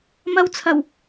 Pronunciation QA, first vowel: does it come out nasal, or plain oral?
oral